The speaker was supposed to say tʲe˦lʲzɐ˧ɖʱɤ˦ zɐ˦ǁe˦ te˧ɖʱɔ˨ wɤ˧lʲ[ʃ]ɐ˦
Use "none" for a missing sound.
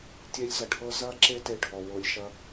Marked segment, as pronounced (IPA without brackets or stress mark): ʃ